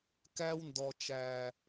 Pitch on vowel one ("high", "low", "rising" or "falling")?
high